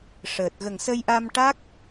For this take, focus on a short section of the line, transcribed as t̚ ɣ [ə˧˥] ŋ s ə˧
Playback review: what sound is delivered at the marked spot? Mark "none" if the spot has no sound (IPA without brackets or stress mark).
ə˨˩